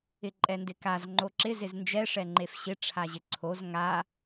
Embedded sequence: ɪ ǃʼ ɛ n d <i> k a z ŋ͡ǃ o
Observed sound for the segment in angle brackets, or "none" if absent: ɪ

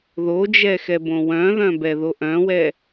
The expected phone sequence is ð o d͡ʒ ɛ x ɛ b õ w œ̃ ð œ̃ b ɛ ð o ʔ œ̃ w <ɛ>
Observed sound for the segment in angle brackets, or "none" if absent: ɛ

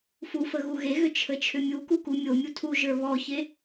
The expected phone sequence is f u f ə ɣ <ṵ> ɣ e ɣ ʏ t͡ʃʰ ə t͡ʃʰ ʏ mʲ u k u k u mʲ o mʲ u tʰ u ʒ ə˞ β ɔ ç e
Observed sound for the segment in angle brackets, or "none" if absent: u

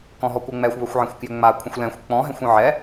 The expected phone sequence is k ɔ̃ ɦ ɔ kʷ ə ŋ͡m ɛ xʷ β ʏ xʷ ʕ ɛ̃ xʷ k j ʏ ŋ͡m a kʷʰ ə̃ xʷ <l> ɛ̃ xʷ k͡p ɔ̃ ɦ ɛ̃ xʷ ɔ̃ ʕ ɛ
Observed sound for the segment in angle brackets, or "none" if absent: l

